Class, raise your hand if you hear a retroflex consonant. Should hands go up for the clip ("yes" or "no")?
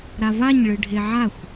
yes